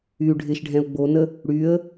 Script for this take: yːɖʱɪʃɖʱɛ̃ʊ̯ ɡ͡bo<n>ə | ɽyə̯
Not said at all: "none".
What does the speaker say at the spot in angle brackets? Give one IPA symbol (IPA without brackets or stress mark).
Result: n